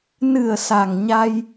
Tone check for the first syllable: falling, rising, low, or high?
low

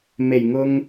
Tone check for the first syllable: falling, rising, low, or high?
low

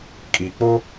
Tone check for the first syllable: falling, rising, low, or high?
low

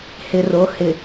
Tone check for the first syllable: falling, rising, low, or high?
low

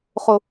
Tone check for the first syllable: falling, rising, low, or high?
low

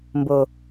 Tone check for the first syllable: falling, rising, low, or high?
low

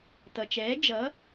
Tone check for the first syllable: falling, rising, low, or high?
low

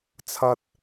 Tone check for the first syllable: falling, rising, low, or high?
high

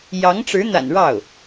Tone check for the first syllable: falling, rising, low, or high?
rising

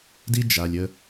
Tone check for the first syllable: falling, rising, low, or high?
high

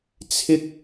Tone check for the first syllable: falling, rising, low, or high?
high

